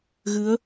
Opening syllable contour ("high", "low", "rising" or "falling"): rising